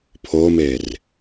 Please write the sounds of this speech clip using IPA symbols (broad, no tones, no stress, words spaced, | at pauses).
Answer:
pʰomer